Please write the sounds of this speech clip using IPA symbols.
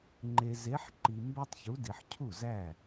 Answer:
ŋ͡ǃ e˨ z e˨˦ ħ ǃ i˨ m b æ˦ tˤ ç u˨˦ d i˨ ħ cʰ u˥˩ z æ˥˩

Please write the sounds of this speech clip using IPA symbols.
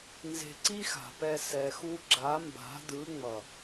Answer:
n z e̤˧ ǀ i˦ x a̤˨ p ɛ˧ s ɛ˨ x u˧ ɡ͡ǁ a˨˦ m b a̤˨˦ d ɯ˨˦ ŋ͡m ʌ˨

